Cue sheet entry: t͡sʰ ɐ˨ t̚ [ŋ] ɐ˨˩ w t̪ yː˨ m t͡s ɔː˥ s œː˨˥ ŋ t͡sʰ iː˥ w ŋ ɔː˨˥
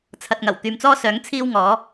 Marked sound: correct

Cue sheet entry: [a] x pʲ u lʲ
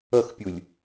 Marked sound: incorrect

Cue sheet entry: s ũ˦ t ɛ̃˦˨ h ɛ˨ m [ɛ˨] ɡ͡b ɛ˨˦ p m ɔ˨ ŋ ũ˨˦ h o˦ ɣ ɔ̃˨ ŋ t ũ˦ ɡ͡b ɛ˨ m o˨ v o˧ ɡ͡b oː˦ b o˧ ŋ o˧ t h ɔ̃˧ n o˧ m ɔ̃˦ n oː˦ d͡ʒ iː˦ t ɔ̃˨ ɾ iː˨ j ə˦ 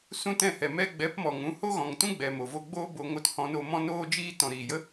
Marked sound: incorrect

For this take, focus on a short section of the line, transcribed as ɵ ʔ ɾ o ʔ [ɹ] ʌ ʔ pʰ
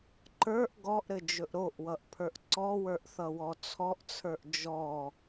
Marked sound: incorrect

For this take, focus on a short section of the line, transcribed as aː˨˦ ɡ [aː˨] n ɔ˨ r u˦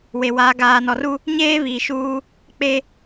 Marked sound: correct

